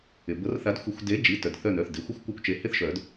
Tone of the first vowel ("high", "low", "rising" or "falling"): low